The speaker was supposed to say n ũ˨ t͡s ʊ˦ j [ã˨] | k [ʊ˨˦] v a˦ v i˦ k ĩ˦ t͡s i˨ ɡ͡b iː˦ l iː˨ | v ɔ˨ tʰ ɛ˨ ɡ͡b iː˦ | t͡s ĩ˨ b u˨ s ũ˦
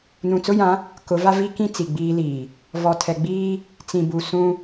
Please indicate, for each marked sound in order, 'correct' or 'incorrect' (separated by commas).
incorrect, correct